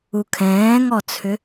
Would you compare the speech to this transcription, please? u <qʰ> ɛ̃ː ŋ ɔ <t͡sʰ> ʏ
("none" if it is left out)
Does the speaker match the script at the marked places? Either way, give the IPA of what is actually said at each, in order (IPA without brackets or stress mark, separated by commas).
kʰ, t͡sʰ